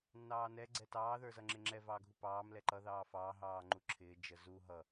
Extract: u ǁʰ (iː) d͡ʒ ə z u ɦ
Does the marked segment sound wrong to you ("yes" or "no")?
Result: yes